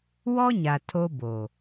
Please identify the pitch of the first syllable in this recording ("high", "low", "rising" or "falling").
high